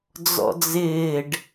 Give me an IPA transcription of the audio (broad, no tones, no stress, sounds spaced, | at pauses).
d͡z ɔ̰ d͡z ɪː ɖ